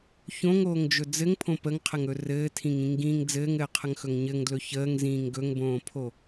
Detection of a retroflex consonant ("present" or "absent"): absent